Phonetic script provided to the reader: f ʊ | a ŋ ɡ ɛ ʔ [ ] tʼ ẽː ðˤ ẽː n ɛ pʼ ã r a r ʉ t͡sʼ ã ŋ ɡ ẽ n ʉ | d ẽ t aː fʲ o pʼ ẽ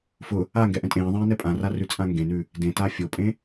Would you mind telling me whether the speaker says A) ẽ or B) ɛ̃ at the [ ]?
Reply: B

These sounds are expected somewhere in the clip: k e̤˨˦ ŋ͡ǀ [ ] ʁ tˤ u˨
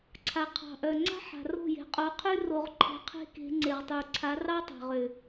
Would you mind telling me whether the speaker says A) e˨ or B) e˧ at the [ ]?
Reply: A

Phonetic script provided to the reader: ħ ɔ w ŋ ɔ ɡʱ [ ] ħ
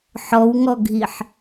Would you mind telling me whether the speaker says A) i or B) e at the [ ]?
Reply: A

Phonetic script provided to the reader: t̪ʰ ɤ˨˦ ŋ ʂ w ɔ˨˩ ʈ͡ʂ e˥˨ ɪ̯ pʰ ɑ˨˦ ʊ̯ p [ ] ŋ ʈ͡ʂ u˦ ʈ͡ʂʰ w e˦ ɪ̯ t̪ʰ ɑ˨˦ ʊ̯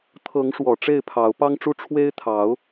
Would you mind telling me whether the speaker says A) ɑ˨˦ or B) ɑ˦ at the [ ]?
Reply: B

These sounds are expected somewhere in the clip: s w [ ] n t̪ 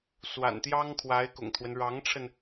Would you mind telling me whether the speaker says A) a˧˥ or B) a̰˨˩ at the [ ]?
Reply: B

